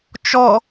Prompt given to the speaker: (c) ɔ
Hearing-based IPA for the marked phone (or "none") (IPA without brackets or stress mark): t͡ʃ